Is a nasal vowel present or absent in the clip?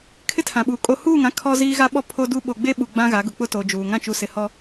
present